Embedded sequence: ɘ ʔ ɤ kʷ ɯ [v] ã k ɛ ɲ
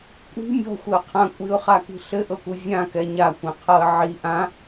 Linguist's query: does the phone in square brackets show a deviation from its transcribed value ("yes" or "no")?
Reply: yes